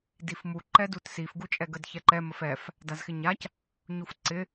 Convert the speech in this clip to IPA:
d i f m u ǃ ɛ d u t s i f ɡ u t͡ʃʼ ɛ ɡ ə d ç ɛ ǃ ɛ m ə f ɛ f | d a z x ɪ ɲ a c | ɲ u f ǀ ɪ

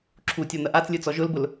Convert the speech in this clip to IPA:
ǁʰ u tʲ ɔ n̪ ɐ ʔ a t͡s lʲ ɯ t͡s ɔ ʒ ʊ l b ʊ l

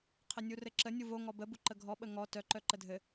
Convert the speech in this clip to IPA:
qʰ ɘ nʲ u r ɘ ǁ ə nʲ u v o ŋ ɔ b ə b u ǃ ə ɡʱ ɔ ɓ ə ŋ ɔ t œ ǃ œ ǃ ə dʱ ɘ

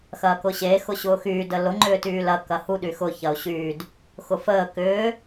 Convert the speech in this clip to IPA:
x ɐː k ʊ ɕ e x ʊ ɕ ʊː x yː d ə l ʊ ŋ͡ǃ ʏː t yː l ɐ k ɐ h u ɗ y x ʊ ç ɐ o̯ ɕ yː d | x ʊ f əː k ʏː

